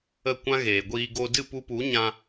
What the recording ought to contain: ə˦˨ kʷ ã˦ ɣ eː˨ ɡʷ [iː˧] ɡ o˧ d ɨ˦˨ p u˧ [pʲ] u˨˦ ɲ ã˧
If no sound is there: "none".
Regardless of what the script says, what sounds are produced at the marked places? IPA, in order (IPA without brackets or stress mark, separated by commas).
iː˧, p